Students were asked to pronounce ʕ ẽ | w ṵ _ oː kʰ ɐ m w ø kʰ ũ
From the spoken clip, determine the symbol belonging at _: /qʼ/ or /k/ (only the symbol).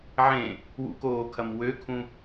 k